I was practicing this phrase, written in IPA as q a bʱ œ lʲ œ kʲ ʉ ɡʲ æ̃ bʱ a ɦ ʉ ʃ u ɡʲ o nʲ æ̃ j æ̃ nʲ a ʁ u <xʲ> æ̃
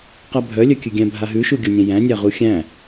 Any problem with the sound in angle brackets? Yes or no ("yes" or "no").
no